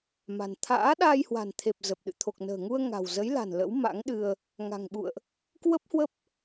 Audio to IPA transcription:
m a̤˨˩ n t̪ʰ a̰ː˧˥ ɗ aː˧ j h w a̤˨˩ n t̪ʰ e˨˩ p̚ z ə˨˩ p̚ ɗ ɨ̰˧˨ t̪ʰ o˨˩ k̚ n ə̤ː˨˩ ŋ u˧ ə̯ ŋ a̤˨˩ w z ə˨˦ j l a̤˨˩ n l ə̰˧˥ w m a̰˧˥ ŋ ɗ ɨ˧ ə̯ | ŋ a̤˨˩ ŋ ɓ ṵ˧˨ ə̯ ʔ | k w ə˦˥ p̚ h w ə˦˥ p̚

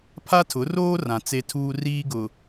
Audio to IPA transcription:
pʰ a˦ tʰ ʊ˨˦ r oː˦ r ã˨ t͡s e˦ tʰ uː˦ r iː˦ ɡ ʊ˨

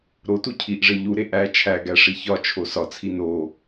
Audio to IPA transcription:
ɾ o t u cʰ i ʔ ʐ e ʎ u ɾ e ʔ æ t͡ʃʰ æ ɡ æ ʂ i ç ɒ t͡ʃʰ o s ɒ t͡sʰ i n o

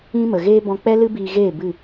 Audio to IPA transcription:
ĩ˦ m ə˨ ɣ eː˦ b ɔ̃˧ k͡p ɛ˦ l ɨ˦ b iː˧ ɣ eː˦˨ b ɨ˦˨

